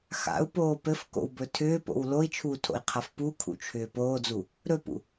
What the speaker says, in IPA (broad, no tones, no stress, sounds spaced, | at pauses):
x a̰ u̯ p oː p ɘ f k o̰ w b ɵ tʰ ʏː p o̰ w l o i̯ t͡ʃʰ uː tʰ o̰ i̯ qʰ a f p u kʰ ṵ t͡ʃʰ ʏː p oː d͡z u | ɾ ɵ p ṵ